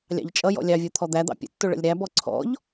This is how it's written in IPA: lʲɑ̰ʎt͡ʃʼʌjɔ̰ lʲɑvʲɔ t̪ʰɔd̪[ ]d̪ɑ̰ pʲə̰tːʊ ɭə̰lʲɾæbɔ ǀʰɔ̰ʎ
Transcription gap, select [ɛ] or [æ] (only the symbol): æ